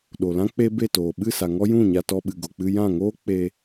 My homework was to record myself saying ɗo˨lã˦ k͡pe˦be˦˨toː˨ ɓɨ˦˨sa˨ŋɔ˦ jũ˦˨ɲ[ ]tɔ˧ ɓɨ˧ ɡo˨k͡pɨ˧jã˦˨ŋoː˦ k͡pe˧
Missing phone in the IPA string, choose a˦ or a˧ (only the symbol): a˧